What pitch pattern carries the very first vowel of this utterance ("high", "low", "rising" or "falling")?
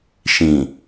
low